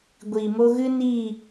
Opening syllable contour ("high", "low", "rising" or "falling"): low